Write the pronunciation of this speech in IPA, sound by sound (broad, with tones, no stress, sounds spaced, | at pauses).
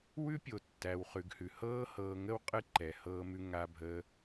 w ʉ˦ pʲ o˨ tː æ˨ w χ ʉ˨ ɡ h ʉ˨ h ɤː˧ h ɤː˨ ŋ ə˧ w qʼ ɨ˦ ǃ ɛ˨ h ɤː˧ m ʉ˧ ŋ a˧ bʱ əː˧